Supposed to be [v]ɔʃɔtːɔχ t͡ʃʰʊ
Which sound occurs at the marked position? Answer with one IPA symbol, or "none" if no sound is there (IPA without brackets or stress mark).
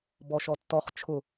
b